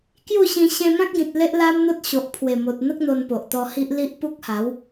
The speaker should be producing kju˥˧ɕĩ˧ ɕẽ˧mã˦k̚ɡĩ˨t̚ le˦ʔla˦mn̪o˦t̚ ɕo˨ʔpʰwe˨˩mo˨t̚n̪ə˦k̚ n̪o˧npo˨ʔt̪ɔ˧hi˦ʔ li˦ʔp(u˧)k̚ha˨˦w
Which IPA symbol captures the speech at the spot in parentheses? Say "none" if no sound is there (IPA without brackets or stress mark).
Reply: u˦